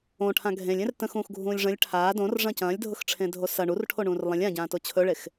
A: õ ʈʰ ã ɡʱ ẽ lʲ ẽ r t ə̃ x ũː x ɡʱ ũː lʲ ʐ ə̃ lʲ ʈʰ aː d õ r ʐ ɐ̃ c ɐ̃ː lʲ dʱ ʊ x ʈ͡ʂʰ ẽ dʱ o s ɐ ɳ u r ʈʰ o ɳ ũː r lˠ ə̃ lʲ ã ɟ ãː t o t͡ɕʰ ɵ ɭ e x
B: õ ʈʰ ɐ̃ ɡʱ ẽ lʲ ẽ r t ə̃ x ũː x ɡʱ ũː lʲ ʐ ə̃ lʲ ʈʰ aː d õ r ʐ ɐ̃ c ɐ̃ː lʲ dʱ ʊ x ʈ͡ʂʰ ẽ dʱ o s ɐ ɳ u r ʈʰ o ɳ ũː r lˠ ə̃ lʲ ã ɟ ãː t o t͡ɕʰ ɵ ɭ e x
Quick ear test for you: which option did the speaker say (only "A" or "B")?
A